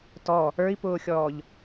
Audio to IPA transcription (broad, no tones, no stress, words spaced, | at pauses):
tɔ | ə˞i̯pʊːxʲɔːʎ